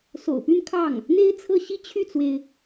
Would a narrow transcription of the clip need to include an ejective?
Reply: no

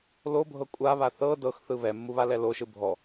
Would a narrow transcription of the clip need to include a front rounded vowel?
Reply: no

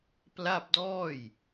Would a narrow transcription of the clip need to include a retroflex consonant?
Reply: no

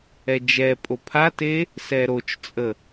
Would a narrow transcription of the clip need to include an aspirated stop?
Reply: yes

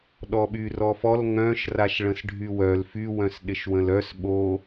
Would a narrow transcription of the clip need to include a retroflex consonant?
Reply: yes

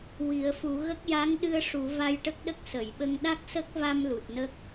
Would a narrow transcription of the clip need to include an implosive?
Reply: yes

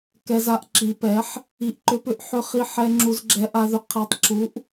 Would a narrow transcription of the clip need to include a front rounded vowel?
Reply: yes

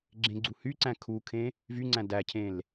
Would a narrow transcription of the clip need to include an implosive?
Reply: no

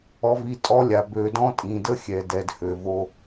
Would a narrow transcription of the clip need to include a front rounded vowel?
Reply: yes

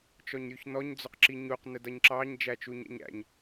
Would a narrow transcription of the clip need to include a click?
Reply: yes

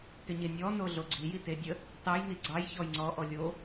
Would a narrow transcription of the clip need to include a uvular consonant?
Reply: no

